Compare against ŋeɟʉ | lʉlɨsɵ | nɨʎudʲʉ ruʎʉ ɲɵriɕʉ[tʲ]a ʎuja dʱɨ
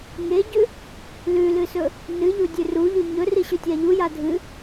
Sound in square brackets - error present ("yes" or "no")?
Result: no